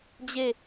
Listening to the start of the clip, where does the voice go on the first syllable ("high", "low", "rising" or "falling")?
falling